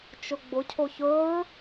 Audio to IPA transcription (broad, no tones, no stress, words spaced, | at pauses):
t͡ʃʊɡ͡bʊcʰoç ɵɹ